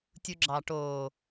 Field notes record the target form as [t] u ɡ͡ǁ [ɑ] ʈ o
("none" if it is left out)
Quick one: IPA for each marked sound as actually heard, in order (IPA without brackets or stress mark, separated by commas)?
tʲ, ɑ